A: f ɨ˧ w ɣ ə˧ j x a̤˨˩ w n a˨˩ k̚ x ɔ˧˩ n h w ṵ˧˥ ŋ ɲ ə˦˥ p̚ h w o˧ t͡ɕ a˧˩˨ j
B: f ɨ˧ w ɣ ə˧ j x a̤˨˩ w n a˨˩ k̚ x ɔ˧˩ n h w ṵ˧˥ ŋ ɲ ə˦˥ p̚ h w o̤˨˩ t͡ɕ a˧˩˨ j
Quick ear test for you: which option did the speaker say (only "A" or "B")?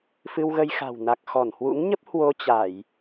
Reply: A